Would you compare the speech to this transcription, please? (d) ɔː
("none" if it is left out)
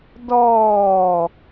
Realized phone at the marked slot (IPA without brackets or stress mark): d